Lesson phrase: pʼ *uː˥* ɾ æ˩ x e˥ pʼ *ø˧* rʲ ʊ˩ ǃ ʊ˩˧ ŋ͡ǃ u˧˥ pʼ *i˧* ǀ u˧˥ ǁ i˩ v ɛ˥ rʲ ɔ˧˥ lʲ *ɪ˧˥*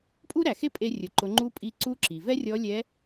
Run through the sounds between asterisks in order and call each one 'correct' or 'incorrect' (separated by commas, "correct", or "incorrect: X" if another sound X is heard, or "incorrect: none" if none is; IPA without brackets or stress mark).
incorrect: u˥, incorrect: e˧, correct, incorrect: ɛ˧˥